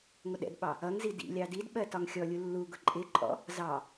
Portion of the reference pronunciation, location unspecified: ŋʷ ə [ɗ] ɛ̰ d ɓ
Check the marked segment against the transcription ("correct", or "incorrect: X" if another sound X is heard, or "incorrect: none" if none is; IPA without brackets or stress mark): correct